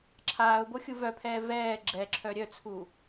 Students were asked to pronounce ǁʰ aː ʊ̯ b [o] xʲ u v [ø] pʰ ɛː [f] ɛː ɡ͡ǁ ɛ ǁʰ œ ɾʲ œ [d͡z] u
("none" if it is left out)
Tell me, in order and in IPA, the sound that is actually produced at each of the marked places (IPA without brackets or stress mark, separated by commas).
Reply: o, œ, v, t͡sʰ